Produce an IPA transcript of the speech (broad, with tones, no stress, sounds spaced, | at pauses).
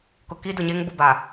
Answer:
k ʊ˨ k iː˦ d ʊ˨ ɲ eː˦ ŋ b ʊ˦˨ b a˨